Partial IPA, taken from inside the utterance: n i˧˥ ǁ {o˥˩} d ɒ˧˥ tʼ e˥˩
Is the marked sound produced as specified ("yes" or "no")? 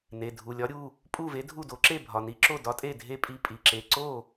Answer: yes